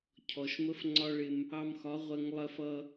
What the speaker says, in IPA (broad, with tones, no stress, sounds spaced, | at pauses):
cʰ ɔ˨ ʃ m ə˦ f ŋ͡ǀ ɒ˦ ɭ ɪ˧ m | ɑ˧ m x ɒ˨˦ ʁʷ ɜ˧ ŋ lˠ ɜ˧ f ʌ˧